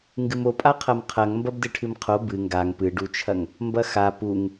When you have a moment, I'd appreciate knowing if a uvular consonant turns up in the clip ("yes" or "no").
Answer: yes